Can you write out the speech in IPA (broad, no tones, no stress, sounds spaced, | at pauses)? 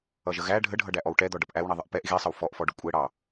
ʌ ʒ ə ɣ æ ɖʱ ə ɖʱ ʌ ɖ æ ʔ ɔ w ʈ ɛ d̪ ɔ ɖ ʌ p ʔ æ w ɳ i ðˤ ə ʔ p ɛ ʔ ɣ i sˤ ə w f ɔ ʔ f ɔ ɖ ʊ kʷʼ ɛ ɽ ɑ